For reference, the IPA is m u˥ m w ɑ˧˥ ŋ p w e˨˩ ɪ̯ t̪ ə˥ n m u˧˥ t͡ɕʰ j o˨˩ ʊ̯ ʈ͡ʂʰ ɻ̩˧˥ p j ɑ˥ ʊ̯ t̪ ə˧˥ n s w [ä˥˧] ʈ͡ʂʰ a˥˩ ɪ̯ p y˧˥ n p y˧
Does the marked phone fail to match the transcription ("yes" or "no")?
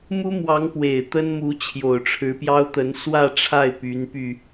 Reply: no